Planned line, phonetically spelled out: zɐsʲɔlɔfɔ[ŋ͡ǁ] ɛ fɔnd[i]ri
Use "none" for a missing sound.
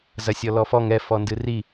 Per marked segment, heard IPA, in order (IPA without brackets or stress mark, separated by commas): ŋ, ɨ